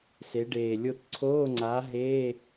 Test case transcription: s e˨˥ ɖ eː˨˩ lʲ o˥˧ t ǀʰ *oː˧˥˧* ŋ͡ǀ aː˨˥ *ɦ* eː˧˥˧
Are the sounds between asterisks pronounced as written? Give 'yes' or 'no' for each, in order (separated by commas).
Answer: yes, yes